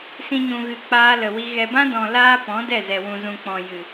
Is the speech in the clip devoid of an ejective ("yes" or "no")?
yes